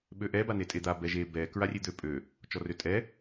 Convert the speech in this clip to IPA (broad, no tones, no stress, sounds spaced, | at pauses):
ɓ ø ʔ ɛ b a n e tʼ e d̪ a b ɛ ʒ e b ɛ k ɹ a rʲ e d̪ ø pʼ ø | t͡ʃ ɔ r ø tʼ ɛ